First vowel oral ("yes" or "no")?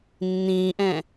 no